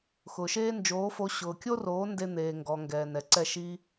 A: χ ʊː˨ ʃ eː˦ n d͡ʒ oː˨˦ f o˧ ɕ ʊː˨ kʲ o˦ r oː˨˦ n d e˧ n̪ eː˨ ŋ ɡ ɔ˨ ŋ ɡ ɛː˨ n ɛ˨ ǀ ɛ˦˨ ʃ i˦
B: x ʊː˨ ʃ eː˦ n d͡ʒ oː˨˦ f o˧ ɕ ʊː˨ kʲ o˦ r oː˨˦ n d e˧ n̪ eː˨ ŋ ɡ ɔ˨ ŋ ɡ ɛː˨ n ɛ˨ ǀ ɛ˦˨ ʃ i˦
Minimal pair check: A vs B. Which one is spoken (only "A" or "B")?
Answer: B